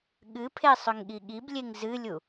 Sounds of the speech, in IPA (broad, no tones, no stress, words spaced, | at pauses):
ɠɨpʰe sˤʏŋɠiɠiblʲeŋ zɨlʲu